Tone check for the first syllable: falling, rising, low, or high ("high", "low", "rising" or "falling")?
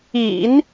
low